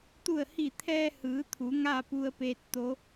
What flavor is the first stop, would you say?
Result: plain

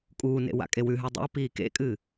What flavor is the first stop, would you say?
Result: ejective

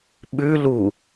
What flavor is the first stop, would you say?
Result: implosive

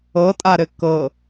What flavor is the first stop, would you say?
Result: ejective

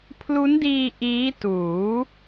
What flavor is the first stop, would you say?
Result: aspirated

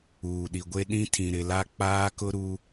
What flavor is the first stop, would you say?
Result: implosive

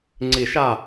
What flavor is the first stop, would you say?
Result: click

